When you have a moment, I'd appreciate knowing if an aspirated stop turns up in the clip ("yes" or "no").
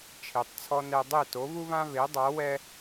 yes